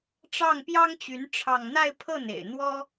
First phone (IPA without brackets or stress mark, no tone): ʈ͡ʂ